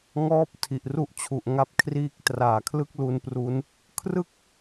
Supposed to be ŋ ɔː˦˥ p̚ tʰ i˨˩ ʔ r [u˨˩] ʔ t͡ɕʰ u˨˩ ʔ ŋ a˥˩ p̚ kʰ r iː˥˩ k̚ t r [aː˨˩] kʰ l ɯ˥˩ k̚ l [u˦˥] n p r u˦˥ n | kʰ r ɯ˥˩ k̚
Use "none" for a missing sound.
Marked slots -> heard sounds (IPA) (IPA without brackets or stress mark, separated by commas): u˥˩, aː˨˩, u˧